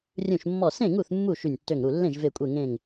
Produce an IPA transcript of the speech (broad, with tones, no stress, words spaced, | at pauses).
rʲũ˧˩ʃmːɔ˧˩ sẽ˥˩ŋu˥˩θ mːu˥˩ ʃy˧˩nʲtːø˧˩ŋɾu˧˩ lːẽ˥˩ʒve˧˩kʷʼe˧˩ ŋẽ˧˩ŋ